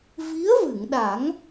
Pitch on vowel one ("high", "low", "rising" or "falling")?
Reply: rising